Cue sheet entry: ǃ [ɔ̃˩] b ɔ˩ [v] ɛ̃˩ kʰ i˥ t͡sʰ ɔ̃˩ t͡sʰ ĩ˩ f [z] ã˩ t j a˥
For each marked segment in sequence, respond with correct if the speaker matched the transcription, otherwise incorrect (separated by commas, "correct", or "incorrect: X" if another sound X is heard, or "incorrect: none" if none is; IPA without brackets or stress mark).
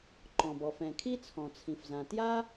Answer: correct, incorrect: f, correct